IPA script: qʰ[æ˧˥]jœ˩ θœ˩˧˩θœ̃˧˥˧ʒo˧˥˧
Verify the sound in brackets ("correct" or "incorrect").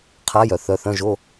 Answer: incorrect